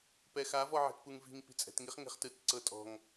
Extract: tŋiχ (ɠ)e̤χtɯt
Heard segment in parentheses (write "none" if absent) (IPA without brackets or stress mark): ŋ